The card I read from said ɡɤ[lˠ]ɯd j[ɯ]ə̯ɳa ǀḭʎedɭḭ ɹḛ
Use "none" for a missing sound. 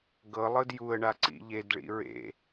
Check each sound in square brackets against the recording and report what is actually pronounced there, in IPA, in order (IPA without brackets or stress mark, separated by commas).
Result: lˠ, u